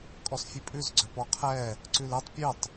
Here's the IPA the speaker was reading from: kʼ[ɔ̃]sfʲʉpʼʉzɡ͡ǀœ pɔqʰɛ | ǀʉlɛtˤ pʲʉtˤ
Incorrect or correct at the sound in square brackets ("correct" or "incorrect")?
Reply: incorrect